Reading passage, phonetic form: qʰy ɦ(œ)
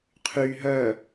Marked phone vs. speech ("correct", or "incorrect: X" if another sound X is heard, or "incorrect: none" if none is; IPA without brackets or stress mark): correct